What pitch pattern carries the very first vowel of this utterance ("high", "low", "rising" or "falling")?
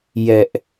high